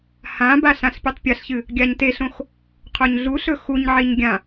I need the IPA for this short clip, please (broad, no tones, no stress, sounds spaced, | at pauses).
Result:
h ã b a ɬ ã ɬ pʲ e tˤ pʲ ɐ ɬ ç ɨ | ɡʲ a ɲ t e ɬ õ x | qʰ o ɲ ɮ u ɬ ɵ x u ɲ ʕ i ɲ ɡʲ ã